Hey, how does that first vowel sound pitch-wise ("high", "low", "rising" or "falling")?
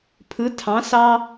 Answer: rising